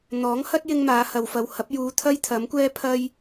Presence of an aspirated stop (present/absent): present